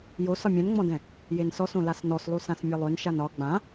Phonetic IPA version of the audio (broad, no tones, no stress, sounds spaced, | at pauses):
j o s ɒ mʲ ɛ̃ n ŋ͡m ɔ̃ d ɛ̃ | j e n s ɔ s õ l a s n ɔ s lˠ u s ã s mʲ ɒ lˠ ø n ʃ a n ɒ ɡ͡b ã